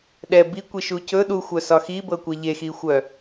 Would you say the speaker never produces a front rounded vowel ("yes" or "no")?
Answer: no